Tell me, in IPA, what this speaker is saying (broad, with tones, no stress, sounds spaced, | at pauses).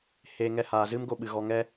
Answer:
h eː˧ ŋ ɛ˧ h aː˨ z ɨ˦ m ɡ o˧ ɓ ɨ˨ ɣ ɔ˧ ŋ ɛ˦